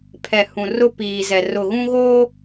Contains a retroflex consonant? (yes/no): no